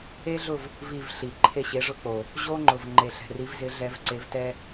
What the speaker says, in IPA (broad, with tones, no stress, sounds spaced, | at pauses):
e˥ ɮ ʊ˥˧ v | v i˥˧ v ɬ i˨ ǃʰ e˥˧ ɕ e˧˥ ʐ ʊ˥ k͡p o˨ | ʑ o˥ ŋ͡ǃ ʊ˨ v ŋ͡ǃ e˨ ɬ ɛ̤˨ r i˧˥ v z ɪ˧˥ ɮ ɛ˧˥ v ǀ e˧˥ v t ɛ˥